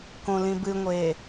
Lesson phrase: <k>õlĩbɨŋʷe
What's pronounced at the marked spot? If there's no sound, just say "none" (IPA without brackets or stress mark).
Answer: k